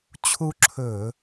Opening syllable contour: high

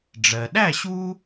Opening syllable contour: low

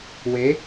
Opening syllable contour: rising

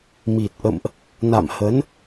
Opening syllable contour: low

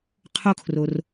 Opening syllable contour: high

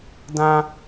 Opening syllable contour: high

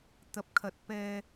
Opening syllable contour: low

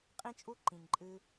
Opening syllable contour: high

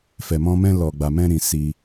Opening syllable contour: low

